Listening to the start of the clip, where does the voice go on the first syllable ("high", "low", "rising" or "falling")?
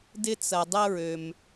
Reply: high